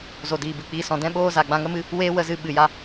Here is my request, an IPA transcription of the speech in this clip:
z o˨ d iː˨ b ɨ˨ k͡p iː˧ s ɔ̃˨ d ɛ̃˦ ɓ oː˦ z a˨ ɡ͡b ã˧ ŋ ə˦ m ɨ˦ | w eː˦ w ə˧ z ɨ˧ ɓ ɨ˨ j a˧

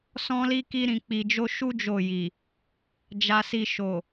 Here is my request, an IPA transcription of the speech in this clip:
s ɔ̃˦ l i˦ k i˧ ɾ ĩ˨ k͡p i˨ d͡ʒ o˧ ʃ u˦ d͡ʒ o˦˨ j i˨ | d͡ʒ a˧ s i˧ ʃ o˨

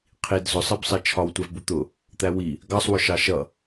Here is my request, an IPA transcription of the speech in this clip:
qʰ i d z ʊ sˤ ɜ b sˤ ɜ t͡ʃʰ ɒ w tʷ æ v b u t̪ ʊ | t̪ æ w i | ɡ ɑ sˤ w ʊ ʃ ɑ ʃ ʌ

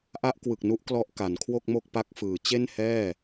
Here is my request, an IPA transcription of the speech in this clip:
ʔ a˦˥ ʔ k w ɯ˨˩ k̚ n u˦˥ ʔ k l ɔ˦˥ ʔ k a˩˦ n kʰ w o˥˩ k̚ m o˥˩ k̚ p a˦˥ k̚ f ɯː˩˦ t͡ɕ e˥˩ n h ɛː˥˩

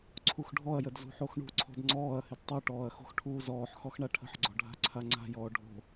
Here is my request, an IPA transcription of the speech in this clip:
ǀʰ u x ɖʱ ɔ ɐ̯ j ə d z ṳ ħ o x ɳ ṳ ǀʰ ɔ̤ d ŋ͡ǀ ɔː ɐ̯ h ɪ d tˤ u ʈ ɔː ɐ̯ x o̤ x ʈʰ uː z ɔː ħ x ɔ x ɳ a ʈʰ ə̤ ħ ɡ͡ǀ ɔ̤ ɖʱ a̤ ǀʰ a ŋ͡ǀ a̤ j ɔː ɖʱ o̤

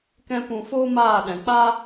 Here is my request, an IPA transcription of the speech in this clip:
k ɛ̃˦ p ũ˧ f oː˦ m aː˦˨ ɗ ɛ̃˨ k͡p a˧

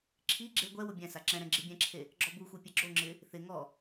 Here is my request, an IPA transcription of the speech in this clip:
ǁʰ i ɡ͡ǁ e ɡʷ ɛ w ʊ bʲ ɛ̃ s a ǁ ɛ̃ ɾ ɛ̃ ɡ͡ǁ i bʲ ɛ̃ ǁʰ e | ɡ͡ǁ ɔ b u xʷ e pʲ ɛ ɡ͡ǁ o ŋ͡ǁ ɪ | θ ɪ ŋ ɔ

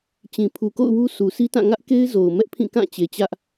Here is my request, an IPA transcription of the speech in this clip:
t͡ɕ ĩ˨ pʰ u˨ k o̰˦˨ ʊ̯ w u˦ s u˨ s i˦ t ã˦˨ ŋ ä˦ ʔ k e˦ ɪ̯ z o˨ ʊ̯ m ɛ˦ ʔ pʰ ĩ˦˨ k ã˦˨ t͡ɕ e˨ t͡ɕ ä˦ ʔ

